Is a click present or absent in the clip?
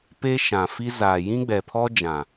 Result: absent